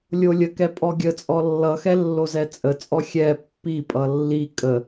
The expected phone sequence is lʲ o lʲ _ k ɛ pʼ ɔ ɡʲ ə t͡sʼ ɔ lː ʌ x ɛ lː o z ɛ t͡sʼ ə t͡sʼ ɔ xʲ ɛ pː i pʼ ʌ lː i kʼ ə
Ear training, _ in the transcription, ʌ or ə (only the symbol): ə